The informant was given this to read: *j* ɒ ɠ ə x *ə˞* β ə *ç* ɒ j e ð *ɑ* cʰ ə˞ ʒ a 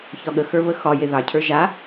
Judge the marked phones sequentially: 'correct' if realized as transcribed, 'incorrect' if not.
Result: incorrect: ç, correct, incorrect: x, correct

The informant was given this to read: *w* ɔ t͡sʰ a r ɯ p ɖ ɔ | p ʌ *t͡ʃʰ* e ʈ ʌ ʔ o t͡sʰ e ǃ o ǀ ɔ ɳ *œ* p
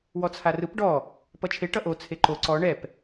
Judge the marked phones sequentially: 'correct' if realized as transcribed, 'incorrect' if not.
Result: correct, correct, incorrect: ɛ

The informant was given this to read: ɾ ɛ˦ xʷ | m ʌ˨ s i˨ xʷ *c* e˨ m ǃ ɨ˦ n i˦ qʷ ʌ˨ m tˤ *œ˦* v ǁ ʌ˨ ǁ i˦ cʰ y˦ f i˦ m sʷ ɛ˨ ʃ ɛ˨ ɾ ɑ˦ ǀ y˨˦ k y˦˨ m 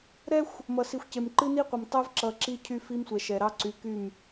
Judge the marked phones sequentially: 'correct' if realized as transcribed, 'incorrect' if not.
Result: correct, incorrect: ɛ˦

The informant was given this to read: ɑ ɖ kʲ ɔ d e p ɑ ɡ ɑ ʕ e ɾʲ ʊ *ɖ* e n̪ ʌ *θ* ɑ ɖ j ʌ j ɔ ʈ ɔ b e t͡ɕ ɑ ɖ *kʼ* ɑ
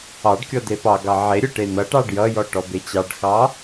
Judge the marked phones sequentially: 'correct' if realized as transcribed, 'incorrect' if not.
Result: incorrect: ʈ, incorrect: ʈ, incorrect: x

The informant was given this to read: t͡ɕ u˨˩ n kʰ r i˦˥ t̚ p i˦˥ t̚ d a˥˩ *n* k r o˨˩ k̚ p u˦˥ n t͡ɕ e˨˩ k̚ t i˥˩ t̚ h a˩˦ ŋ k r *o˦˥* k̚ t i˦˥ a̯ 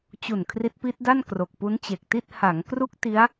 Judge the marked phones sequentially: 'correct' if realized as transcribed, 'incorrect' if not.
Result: correct, incorrect: u˦˥

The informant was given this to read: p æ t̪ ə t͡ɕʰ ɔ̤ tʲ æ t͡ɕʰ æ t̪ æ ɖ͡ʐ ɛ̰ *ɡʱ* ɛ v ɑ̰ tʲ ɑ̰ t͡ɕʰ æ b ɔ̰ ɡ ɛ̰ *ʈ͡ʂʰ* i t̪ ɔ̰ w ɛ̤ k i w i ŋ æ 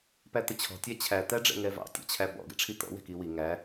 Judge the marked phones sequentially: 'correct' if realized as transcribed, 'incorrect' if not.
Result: incorrect: ŋ, correct

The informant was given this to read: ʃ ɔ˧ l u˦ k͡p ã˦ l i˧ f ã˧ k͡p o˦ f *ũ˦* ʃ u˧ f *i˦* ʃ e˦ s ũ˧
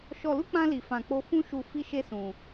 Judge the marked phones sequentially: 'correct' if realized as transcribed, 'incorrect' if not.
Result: correct, correct

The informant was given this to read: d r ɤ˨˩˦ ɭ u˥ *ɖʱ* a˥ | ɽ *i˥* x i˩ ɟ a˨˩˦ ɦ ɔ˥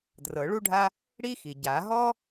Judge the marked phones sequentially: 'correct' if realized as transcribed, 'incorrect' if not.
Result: correct, correct

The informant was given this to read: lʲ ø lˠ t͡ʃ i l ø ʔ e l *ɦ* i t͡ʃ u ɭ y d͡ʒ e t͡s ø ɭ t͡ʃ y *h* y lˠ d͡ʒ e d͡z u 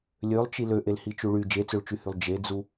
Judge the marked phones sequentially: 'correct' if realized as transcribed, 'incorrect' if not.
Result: incorrect: h, correct

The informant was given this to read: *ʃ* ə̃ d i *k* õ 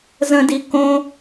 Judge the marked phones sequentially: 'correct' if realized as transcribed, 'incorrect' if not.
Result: incorrect: z, correct

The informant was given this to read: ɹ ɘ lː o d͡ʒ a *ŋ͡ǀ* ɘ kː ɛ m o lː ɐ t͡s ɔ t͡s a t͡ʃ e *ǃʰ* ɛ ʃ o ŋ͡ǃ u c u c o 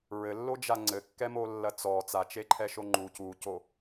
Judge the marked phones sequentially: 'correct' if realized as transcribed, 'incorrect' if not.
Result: correct, correct

